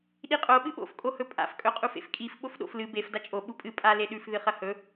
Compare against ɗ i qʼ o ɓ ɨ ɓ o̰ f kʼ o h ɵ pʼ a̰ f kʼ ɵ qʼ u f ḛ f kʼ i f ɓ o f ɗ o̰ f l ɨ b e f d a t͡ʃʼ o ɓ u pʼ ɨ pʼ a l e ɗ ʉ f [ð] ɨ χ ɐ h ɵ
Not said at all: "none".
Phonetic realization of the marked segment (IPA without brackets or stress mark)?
ð